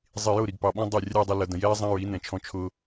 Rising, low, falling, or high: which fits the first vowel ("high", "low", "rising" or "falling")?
low